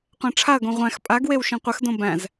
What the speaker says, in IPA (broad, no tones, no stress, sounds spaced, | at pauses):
qʷ æ̃ ʈ͡ʂʰ a ɐ̯ ɡ õ ʁʷ æ̃ x pʼ a ɡ w e w ʃ ĩ qʷ ɘ x d õ b æ̃ z